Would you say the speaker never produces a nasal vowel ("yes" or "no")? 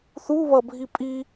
yes